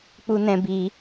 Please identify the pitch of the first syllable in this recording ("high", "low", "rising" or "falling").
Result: high